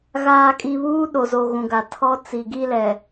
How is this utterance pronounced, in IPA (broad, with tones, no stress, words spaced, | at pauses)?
ɣaː˨kʼi˨βuː˦ ɗo˨zo˨ ɣũ˨ɡa˨tʰɔ˦ t͡si˨ɡi˦lɛ˨